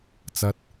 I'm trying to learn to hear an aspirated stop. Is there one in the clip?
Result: no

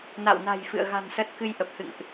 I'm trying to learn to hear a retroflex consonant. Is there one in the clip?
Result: no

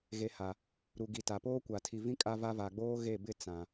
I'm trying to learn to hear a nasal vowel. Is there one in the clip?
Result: yes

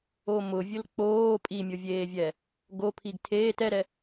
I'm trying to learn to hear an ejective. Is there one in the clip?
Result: yes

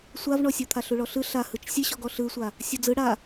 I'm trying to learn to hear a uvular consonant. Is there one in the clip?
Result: no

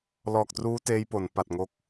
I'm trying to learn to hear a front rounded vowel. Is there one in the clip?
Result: no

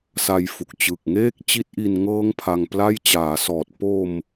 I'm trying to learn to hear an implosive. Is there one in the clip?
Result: no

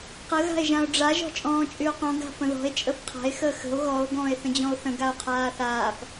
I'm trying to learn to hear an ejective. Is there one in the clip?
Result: yes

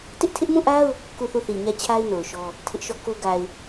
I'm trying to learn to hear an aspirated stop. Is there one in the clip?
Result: yes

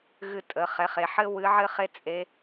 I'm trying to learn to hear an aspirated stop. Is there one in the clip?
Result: no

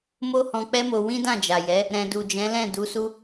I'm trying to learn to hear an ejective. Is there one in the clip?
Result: no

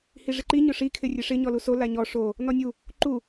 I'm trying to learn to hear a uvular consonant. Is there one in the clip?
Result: no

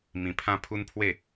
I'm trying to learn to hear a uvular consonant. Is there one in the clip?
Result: no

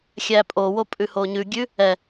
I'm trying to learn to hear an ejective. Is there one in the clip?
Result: yes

